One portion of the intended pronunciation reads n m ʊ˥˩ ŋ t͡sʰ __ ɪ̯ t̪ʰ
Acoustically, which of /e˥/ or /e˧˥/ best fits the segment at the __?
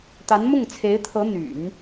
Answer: e˧˥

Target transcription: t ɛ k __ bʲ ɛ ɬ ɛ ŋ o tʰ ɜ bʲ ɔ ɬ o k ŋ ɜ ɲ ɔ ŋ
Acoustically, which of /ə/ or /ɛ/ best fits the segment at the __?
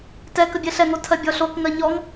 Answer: ə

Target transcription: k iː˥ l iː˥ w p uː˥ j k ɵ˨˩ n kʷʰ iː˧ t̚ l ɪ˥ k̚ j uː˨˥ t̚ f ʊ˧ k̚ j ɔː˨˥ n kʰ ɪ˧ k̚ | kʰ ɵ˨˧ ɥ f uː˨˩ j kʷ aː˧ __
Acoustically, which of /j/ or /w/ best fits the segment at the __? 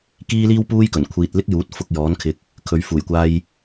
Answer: j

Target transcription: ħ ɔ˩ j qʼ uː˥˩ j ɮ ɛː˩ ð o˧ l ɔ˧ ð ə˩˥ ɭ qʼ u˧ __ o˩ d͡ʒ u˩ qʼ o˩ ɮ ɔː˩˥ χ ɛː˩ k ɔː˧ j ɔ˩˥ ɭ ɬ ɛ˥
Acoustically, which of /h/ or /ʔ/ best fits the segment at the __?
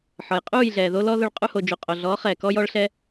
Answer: h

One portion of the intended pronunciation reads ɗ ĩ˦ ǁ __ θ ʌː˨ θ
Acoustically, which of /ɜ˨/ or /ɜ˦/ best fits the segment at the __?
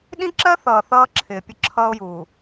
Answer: ɜ˦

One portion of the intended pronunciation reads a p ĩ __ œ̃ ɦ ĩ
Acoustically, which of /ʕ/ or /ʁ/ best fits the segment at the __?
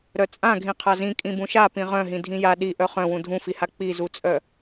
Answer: ʁ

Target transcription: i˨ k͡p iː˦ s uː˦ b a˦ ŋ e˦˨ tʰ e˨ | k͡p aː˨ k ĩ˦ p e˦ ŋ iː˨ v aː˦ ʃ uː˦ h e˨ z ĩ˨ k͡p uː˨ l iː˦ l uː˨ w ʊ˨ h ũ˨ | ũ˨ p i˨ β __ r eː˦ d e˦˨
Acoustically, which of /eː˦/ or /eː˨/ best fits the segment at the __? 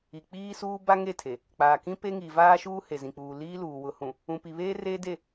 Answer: eː˦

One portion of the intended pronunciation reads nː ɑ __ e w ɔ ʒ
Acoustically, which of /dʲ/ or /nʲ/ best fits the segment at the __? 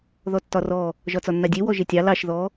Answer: dʲ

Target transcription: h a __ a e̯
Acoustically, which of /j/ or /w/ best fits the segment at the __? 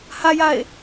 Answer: j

